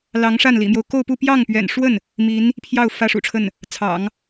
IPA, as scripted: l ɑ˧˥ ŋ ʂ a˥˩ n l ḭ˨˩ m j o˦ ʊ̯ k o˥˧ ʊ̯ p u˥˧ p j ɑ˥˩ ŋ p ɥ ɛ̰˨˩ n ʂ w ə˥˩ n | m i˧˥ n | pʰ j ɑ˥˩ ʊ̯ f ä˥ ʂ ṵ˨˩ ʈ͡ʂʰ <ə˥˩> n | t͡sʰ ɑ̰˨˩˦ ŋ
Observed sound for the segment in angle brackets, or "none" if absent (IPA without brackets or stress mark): ə˥˩